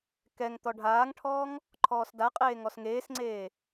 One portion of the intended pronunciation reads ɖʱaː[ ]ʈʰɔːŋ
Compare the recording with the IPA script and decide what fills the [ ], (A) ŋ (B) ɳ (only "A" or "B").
A